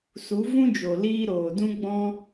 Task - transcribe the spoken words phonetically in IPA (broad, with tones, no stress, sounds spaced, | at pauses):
s u˨˦ v ũ˦ d͡ʒ o˨ l iː˧ ɾ oː˨ d ũ˦ ɡ͡b ɔ̃˦